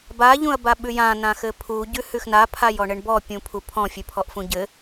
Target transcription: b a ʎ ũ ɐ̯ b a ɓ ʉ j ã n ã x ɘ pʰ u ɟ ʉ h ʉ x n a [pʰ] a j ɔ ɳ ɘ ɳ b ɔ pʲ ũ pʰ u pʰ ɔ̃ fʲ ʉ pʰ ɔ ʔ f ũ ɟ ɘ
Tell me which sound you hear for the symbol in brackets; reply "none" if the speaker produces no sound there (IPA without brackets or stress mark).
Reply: pʰ